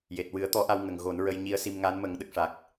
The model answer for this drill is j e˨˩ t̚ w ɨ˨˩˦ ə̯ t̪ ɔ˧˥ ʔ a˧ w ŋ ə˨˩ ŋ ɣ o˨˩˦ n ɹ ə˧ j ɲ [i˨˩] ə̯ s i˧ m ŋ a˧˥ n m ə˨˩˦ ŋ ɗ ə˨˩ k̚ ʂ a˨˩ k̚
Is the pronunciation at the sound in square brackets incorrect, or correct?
incorrect